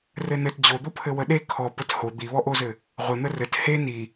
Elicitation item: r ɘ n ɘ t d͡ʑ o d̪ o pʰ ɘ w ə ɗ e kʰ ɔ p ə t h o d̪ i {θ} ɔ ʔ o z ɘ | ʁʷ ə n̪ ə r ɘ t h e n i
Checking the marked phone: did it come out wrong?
yes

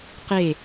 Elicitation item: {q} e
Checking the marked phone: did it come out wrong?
no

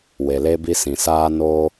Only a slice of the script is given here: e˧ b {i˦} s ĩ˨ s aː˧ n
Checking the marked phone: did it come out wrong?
yes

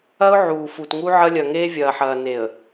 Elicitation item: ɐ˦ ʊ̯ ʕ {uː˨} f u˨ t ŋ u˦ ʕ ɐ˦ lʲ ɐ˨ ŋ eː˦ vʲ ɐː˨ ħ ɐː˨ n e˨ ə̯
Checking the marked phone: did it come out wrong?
no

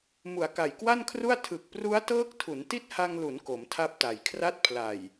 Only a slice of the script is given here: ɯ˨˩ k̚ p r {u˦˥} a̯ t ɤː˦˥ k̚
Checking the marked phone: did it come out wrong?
no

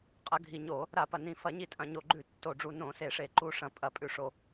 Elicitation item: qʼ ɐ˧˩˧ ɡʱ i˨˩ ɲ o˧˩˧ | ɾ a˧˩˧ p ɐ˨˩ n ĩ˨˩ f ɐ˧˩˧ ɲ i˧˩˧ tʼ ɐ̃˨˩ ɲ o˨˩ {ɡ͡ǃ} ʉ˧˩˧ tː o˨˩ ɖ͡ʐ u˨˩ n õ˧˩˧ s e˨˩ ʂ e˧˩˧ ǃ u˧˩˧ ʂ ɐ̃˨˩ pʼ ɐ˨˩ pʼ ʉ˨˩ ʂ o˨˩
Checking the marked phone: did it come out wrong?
no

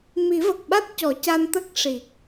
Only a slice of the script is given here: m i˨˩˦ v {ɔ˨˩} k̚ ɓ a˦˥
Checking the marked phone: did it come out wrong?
yes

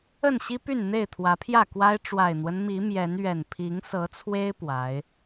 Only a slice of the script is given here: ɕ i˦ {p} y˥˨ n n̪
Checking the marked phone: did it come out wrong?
no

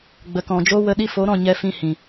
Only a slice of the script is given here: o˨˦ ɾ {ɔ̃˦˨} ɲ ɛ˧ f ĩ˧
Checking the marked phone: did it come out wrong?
no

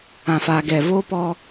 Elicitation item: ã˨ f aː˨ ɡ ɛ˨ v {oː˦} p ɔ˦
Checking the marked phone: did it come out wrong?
no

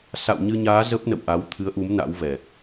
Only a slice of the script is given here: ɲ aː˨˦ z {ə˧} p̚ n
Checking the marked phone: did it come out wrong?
yes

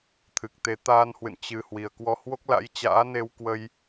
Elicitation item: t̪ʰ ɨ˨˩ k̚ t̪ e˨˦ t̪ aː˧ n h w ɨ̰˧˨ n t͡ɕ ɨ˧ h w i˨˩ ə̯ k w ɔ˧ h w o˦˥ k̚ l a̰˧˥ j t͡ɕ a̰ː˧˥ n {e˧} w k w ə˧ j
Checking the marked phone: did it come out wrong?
no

